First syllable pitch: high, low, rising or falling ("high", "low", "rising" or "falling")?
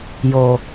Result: low